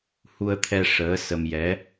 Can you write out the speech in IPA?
h u˧ ə̯ t̪ʰ ɛ˧ ʂ əː˧˥ s ə˧ m j ɛ˧˥

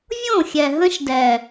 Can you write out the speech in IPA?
vʲ õ˦˨ xʲ ɛ˨ ɦ ə̃˦ ʃ d ɛ˨

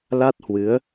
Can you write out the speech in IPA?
l a˦˥ t̚ h w ɨ˨˦ ə̯

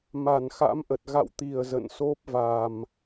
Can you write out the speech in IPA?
m a˧˩ n x a̰˧˥ m ʔ ə˨˩ t̚ ɣ a̰˧˨ w t̪ i˨˩ ə̯ z ə̰˧˨ n s o˦˥ p̚ v a˨˩ m

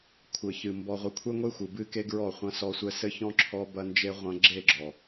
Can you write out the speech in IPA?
kʷʰ ɘ˨ ç ɨ˨ m b ɔ˨ ʁʷ ɨ˨ kʷʰ ɛ˦ ŋʷ e˦ xʷ ɨ˨ b ɨ˦ k e˦ ɡ ɹ ɔ˦˨ χʷ ɐ̃˦ s ɔ˦ sʷ ɛ˦ s ɘ˦ ç ɔ̃˦ ǁʰ ɔ˦ b ɐ˦ n d͡ʒ e˦ ʁʷ ɐ̃˦ ɡ͡ǁ e˦˨ ɡ͡ǁ ɔ˨

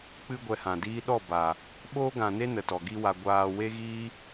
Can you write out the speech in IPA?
k͡p ɨ˦ ɡʷ ɛ˧ h ã˨ d iː˦ ɗ ɔ˦˨ b a˨ | ɓ oː˦ ɡ ã˨ n e˦ n ə˨ t ɔ˨ ɡ i˦ w a˧ ɡʷ aː˧ w e˦ ɣ iː˦

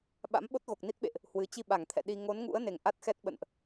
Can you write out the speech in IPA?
ɓ a̰˧˥ m ɓ o˦˥ t̚ ɣ o˨˩ k̚ n i˦˥ t̚ ɓ ḛ˧˨ ʔ | h w ɨ˨˦ t͡ɕ i˧ ɓ a˧˩ ŋ t̪ʰ ɛ̰˧˨ ɗ i˧ ŋ o˨˦ n ŋ ṵ˧˥ ə̯ n e˨˩ ŋ ʔ a˦˥ t̚ x ɛ˦˥ t̚ ɓ ə̰˧˨ n ʔ

